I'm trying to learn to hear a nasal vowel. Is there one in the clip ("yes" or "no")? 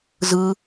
no